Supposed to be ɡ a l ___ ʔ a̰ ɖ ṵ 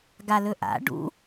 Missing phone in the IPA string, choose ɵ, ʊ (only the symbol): ɵ